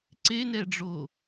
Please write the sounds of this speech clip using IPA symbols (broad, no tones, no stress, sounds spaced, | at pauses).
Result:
ǀ e n ɛ ɖ͡ʐ o